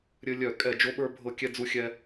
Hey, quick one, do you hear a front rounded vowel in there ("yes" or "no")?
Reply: yes